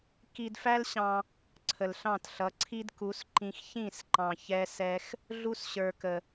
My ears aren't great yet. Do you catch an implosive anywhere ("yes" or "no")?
no